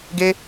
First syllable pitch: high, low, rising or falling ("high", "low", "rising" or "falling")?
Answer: high